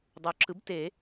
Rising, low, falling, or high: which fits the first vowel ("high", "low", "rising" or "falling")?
rising